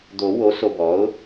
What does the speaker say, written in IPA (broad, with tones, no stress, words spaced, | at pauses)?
d̪o˨˩˦wo˩˥ so˨bɔ˩˥ʊ̯